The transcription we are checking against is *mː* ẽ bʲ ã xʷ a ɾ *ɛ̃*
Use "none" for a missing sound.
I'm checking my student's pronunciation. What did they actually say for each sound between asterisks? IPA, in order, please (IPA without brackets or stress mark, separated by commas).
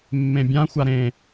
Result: mː, ẽ